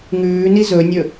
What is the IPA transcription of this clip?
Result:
ŋʉː nizɵnʲɵ

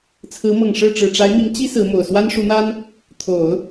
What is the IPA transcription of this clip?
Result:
t͡sʰɹ̩˧˥mɤ˨˩ŋʂɻ̩˥˩ ʈ͡ʂɻ̩˨˩ʈ͡ʂa˧˥ɪ̯mi˧˥ŋ t͡ɕi˥ sɹ̩˧˥mo˨˩ʊ̯ swa˥nʂu˧˥n̪a˥n | t̪ʰo˨˩˦ʊ̯

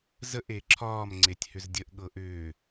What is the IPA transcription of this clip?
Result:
zəʔ eǁʰɒːm ŋ͡ǀetʲhʏzdʲəʔ ɠɤʔʏː

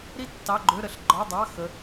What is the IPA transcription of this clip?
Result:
ɾi˥ tːɑ˧˥˧ɡ͡ǃø˧˥˧ɾə˧˥˧ɬ ɡ͡ǃɒ˧˥˧dˤɑ˧˥˧xə˨˦

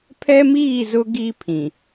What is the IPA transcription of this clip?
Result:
pʰɛ˦miː˦˨ zʊ˦ɡi˦pʰĩ˨

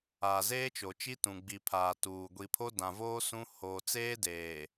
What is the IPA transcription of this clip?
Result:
aː˨zeː˦t͡ʃo˨t͡ʃi˦ tũ˨ɡ͡bi˨pʰaː˨ tuː˨ ɡʷi˨pʰo˦dã˨voː˦ sũ˦ hoː˨ t͡seː˦deː˨

